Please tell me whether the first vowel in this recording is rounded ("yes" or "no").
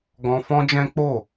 yes